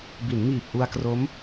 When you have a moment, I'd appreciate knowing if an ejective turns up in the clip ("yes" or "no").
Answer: no